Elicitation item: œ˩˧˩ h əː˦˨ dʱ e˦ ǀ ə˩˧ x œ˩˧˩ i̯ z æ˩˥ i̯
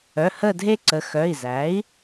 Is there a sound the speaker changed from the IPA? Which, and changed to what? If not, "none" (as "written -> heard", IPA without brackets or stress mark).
none